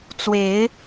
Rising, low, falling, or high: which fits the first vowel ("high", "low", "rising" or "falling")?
rising